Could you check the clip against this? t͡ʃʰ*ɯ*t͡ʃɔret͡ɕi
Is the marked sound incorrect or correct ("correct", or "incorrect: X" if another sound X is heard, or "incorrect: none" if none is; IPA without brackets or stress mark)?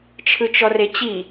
correct